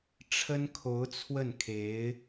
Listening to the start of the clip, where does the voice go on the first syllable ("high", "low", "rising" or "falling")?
high